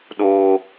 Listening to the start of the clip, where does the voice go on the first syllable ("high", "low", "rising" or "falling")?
high